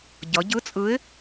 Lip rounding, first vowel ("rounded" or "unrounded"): unrounded